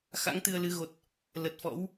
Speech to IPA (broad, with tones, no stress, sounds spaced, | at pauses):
x a̰˧˥ ŋ t̪ ɨ˧ ə̯ l ɨ˨˦ ɣ o˨˩ t̚ | l ə˨˩ t̚ f ɔ̰˧˥ w